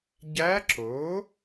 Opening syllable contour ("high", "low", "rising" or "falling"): rising